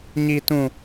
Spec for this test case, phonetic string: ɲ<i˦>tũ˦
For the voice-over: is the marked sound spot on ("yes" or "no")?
yes